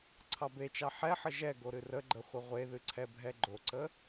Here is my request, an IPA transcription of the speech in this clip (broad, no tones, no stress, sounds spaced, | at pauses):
ǀʰ ɑ b e t͡ʃ ɑ ħ ɛ ħ ə ʒ ɛ ɡ o ɾ ɨ r ə ɡ͡ǃ ə χʷ ə ʁʷ e ð ɨ ǀʰ ɛ bʱ ɛ ɡ͡ǃ o ǀ ə